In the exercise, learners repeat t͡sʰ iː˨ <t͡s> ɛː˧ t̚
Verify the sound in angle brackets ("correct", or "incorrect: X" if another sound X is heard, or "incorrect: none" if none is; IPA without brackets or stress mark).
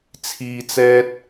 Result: correct